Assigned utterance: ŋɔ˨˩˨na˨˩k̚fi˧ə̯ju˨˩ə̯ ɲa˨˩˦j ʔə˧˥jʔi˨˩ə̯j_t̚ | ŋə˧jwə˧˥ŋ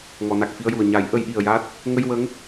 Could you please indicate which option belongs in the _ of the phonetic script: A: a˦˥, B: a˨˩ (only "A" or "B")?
A